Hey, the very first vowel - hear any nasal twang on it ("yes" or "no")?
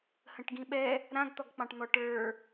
yes